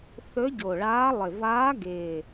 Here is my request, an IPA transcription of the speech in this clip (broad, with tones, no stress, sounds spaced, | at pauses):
θ ɵ˧˥ ɟ o˨˩ ɭ aː˧˥ lˠ ɪ˨˩ v aː˧˥ ɡ ɪː˨˩